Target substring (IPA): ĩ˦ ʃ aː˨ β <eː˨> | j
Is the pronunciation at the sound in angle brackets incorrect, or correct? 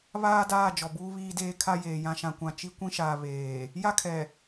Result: correct